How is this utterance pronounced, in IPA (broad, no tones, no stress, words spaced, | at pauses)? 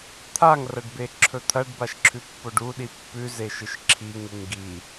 t̪ʰaŋrɐɖbe ǁʰɵt̪ʰɐɖbaʃ ǁʰʉpːoɖuɗi pːʉ zeʃɨʃǁʰi ŋɨŋɡi